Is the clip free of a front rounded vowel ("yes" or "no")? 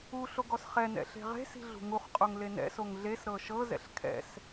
yes